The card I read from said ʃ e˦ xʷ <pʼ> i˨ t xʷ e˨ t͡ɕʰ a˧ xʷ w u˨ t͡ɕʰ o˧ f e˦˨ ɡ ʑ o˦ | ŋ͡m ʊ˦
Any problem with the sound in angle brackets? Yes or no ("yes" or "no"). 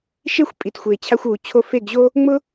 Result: no